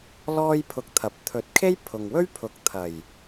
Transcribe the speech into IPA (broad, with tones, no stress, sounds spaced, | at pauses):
l ɔː˥ j pʰ ʊ˧ k̚ t̪ʰ ɐ˨˥ p̚ t̪ʰ ɵ˨˥ t̚ kʰ e˥ j pʰ ʊ˨ ŋ w ɵ˥ ɥ pʰ ʊ˨ k̚ t̪ʰ ɐ˨˩ j